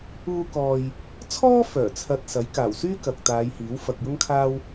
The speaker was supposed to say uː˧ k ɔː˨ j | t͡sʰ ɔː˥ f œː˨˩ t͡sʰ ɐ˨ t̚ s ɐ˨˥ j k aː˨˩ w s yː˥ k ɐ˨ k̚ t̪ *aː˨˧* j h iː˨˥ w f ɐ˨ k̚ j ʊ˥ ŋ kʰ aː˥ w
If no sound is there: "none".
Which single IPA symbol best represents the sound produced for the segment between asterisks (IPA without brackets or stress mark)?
aː˨˧